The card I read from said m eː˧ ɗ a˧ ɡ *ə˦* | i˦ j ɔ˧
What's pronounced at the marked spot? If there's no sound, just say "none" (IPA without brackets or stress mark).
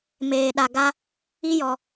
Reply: a˦